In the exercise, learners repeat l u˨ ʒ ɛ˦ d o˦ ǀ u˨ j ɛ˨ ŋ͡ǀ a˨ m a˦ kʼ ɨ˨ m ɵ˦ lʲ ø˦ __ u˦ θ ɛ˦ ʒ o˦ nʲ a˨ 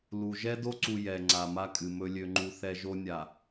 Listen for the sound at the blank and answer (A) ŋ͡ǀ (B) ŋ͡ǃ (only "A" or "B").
B